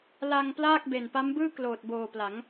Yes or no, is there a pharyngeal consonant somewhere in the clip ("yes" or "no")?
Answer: no